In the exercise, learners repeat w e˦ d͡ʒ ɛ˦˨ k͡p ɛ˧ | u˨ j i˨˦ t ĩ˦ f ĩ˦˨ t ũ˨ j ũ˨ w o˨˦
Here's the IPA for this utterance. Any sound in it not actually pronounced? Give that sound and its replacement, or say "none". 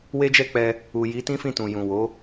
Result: none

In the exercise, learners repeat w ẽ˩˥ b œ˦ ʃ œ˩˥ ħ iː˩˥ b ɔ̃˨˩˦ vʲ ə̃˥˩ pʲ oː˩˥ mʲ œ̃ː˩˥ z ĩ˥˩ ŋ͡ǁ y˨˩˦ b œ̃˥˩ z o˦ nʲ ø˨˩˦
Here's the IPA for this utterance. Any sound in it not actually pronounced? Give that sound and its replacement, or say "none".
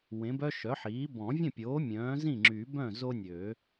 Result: none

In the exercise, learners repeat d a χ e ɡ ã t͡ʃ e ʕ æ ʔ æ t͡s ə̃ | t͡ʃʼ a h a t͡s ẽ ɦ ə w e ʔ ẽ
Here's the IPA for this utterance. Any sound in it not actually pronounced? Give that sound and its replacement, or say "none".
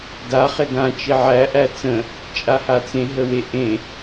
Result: none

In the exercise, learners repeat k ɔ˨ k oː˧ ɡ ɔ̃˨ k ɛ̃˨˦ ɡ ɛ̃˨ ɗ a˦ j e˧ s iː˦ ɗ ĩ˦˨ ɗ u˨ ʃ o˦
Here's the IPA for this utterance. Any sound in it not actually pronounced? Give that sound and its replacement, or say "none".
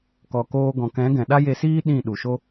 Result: none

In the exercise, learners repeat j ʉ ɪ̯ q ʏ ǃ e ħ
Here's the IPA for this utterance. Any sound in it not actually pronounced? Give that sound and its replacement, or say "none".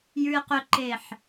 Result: none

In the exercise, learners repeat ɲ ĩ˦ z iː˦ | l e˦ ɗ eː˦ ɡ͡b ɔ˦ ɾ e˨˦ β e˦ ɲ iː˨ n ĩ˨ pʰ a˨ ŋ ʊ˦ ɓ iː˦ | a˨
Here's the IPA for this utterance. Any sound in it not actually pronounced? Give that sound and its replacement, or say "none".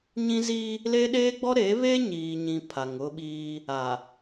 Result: n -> ɲ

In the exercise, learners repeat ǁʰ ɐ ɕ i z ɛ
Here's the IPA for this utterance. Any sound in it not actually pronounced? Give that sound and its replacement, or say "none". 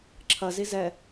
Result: ɕ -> z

